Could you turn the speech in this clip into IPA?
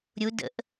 ɾʲu də̰ʔ

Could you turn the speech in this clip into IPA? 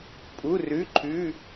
pʼu˩˧˩rʉ˩˧˩ǃʰʉ˩˧˩

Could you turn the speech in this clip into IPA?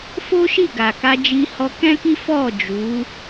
fo˦ʃi˦˨ɡa˨ka˧ d͡ʒi˧hɔ˧kɛ̃˦ki˦ fɔ˦˨d͡ʒu˨˦

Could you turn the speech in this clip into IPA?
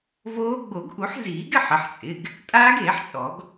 voː˦˥ ɡ͡bo˨˩˦ɡʔu˨˩˦ħziː˨˩˦ɡ ɪ˩˧˩ħɪ˩˧˩ħt͡sʼɪ˩˧˩ɡ | tʼaː˦˥ɡeː˨˩˦ħt͡ʃʼɔ˨˩˦ɡ

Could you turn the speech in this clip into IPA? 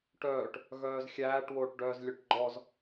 ʈœːʈ | ɣœːzxʲæːʈ woːʈɖœːzlʲœʈɡ͡ǃɔz

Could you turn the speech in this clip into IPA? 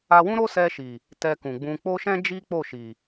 a˧wũ˦ɾo˦sɛ˧ ʃi˨ | tɛ˧kũ˨ ɡ͡bũ˧ k͡po˦ʃɛ̃˦d͡ʒi˦ k͡po˦˨ʃi˨

